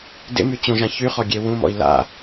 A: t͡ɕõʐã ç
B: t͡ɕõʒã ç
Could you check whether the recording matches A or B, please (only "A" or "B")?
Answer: B